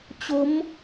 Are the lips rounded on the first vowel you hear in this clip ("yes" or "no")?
yes